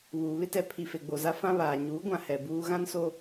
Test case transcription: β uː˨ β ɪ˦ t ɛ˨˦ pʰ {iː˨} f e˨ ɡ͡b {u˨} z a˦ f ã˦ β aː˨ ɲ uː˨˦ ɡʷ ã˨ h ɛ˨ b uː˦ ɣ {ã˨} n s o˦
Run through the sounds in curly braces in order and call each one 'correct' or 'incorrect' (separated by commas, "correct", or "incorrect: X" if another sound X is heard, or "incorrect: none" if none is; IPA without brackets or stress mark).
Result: incorrect: i˨, incorrect: o˨, incorrect: ã˦